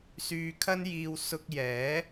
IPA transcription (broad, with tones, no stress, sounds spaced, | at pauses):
s yː˧ kʰ ɐ˥ n j iː˧ w s ʊ˧ k̚ j ɛː˨˥